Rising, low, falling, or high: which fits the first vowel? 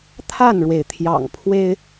falling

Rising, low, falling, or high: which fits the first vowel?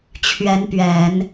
rising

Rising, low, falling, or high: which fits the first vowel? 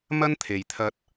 high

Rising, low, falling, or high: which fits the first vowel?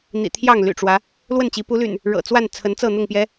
low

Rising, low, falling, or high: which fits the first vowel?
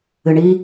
low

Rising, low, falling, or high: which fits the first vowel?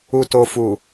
low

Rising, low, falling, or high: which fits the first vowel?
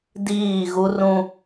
falling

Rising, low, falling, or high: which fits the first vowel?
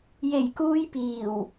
low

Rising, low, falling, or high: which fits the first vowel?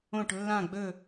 falling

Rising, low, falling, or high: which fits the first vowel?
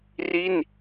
falling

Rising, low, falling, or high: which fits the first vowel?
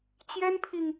high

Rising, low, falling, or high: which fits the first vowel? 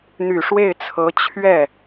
low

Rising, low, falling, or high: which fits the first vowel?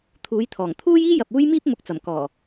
rising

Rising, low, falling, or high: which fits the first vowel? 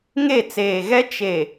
falling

